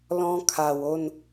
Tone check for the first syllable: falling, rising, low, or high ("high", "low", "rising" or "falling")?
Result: high